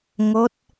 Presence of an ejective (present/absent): absent